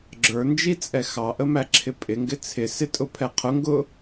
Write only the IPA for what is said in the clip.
ɡ͡ǁ ə˞ n d͡ʒ i t͡sʼ ɛ x ɑ ʔ ə m æ ǁʰ ɪ pʼ ɪ ŋ ɡ ɪ t͡sʰ ɪ s ɪ tʼ ʊ pʰ ɛ qʰ ʊ ŋ ɡ ʊ

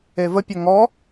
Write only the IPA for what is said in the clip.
e v ə pʲ ə ŋ ɔ

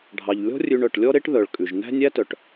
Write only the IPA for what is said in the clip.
ɖʱ ɑ˩ ʎ lʲ ɔ̤˦ rʲ ʉ˨ ɳ œ˩ ʈ lʲ ɔ˥ ɾ e˥ ʈ ð œ˩ ɭ kʼ ʉ˩ ʒ n æ̤˥ nʲ æ˥ t œ˩ ʈ

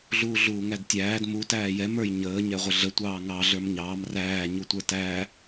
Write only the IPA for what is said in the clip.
ɮ uː ɮ uː ŋ æ d tʲ æː d m u t æː j ɛ m ə˞ j ɲ əː ɲ ɛ ʁʷ ə ɮ ə tʷ ɑː ŋ ɑ ɮ ə˞ m ɲ ɑː m r æː ɲ u tʷ ə˞ t æ

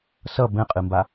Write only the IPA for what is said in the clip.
s ʌ b ɛ̃ qʼ ɨ m b a

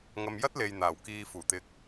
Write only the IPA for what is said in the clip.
ŋ ɐ˧ m j ɐ˥ t̚ l e˨ j n̪ aː˨˩ w k iː˨ f uː˨˩ t̪ ɪ˨˥ k̚

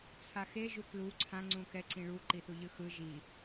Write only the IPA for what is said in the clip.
t͡sʰ a x e ʒ u k l u ǀʰ ã ŋ͡ǀ ũ k ɛ ǀ ĩ ɭ u ǃ i θ u ʎ ɯ x ɯ ʒ i

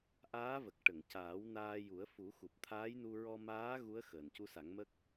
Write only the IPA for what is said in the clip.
ʔ aː˧˥ v ə˨˩ k̚ ʈ ə˨˩˨ ŋ c aː˨˩˦ w n aː˧ j u˨˩˦ ə̯ f u˨˩˦ x u˨˩ p̚ t̪ʰ aː˧˥ j n u˧ ɹ ɔ˧ m aː˧˥ ɣ u˧˥ ə̯ x əː˨˩ n c u˧˥ s a˨˩˦ ŋ m ə˦˥ k̚

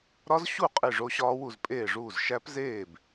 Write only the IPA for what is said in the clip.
ɾ ɒ˦˥ z ɕ u˥˩ qʼ i˥˩ ʐ o˦˥ ɕ ɒː˦˥ w u˥˩ z pʼ eː˥˩ ʐ uː˥˩ z ʃ æ˦˥ p z eː˥˩ b

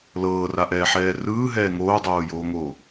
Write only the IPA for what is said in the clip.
l ɤː r a ʔ ɛː ħ ɛː r ɯː ɦ ɛː ŋ oː dˤ oː j oː ŋ oː

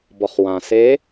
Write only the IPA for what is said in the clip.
b ɔ˩ χ w ã˩ s e˧˥

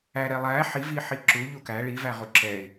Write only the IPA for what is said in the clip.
æ ɾ ɛ lˠ æ ħ i v i ħ i ǁ u ʎ u k æ ɭ i v æ ʁ u ǁ ɛ ɪ̯

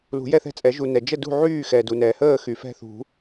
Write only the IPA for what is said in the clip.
l ṳ˨˩˦ j ɛ˥˨ θ ɛ̤˥˨ t͡sʼ ɛ˨˩˦ ʒ u˩ n ɛ˩ d͡ʒ ə˥˨ d ṳ˥˨ ʕ yː˥˨ x ɛː˩ d u˩ n ɛː˩ h əː˥˨ x y˩ f ɛ̤˥˨ θ ṳ˨˩˦

